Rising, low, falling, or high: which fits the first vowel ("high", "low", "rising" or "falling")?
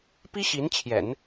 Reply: high